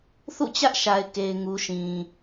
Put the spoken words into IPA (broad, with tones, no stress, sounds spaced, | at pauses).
θ ṵ˦˨ t͡ɕ ä˦ ʔ ʃ a˨ ɪ̯ k e˨ ɪ̯ ŋ u˨ ʃ ĩ˨